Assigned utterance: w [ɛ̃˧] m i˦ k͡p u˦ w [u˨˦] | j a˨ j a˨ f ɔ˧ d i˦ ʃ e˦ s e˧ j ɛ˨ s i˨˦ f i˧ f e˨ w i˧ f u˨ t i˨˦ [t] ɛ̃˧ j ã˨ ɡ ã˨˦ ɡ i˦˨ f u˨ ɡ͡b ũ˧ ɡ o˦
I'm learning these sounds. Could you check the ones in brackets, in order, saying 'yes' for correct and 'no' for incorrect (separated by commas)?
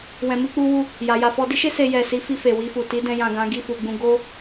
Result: yes, no, no